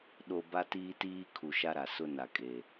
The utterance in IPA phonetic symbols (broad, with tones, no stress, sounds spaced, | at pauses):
ɗ o˨ b a˦ t iː˦ t iː˦ kʰ u˨ ʃ a˦ ɾ a˨ s ʊ˦ n a˨ kʼ e˨